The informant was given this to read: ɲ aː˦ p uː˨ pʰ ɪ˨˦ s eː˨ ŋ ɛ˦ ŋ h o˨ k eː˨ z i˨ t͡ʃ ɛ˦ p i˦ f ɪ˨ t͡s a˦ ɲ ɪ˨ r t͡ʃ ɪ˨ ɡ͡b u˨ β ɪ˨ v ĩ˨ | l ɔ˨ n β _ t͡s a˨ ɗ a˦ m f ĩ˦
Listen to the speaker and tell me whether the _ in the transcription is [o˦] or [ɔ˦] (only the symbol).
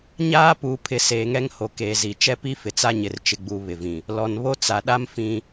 o˦